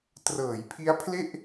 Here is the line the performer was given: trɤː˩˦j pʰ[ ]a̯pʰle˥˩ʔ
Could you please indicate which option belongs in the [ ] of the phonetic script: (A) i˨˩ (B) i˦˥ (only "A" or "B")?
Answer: B